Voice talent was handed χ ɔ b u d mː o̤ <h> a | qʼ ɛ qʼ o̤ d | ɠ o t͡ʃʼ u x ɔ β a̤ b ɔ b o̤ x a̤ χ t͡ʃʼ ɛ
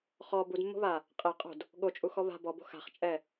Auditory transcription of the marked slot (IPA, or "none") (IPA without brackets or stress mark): β